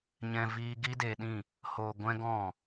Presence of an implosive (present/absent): present